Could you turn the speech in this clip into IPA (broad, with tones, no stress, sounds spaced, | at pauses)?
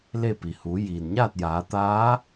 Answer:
l e˥˨ p i˩ h uː˩˧ j iː˩ n ɲ aː˥˨ t̚ j aː˩˧ t̪ aː˧˥